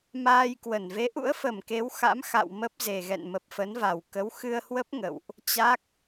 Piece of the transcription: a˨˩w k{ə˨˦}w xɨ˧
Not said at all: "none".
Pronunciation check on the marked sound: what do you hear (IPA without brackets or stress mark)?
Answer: ə˨˦